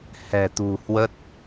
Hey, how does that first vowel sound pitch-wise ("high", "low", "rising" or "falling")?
low